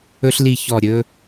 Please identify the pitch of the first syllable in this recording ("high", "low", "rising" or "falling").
high